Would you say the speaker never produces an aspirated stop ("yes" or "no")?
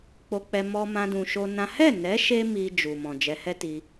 yes